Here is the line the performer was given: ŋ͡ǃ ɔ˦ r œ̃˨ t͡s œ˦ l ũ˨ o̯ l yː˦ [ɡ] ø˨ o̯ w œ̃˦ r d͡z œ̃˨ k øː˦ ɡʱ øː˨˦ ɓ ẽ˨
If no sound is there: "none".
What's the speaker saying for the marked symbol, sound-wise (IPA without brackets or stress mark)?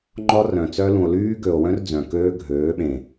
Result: ɡ